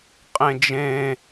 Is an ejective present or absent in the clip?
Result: present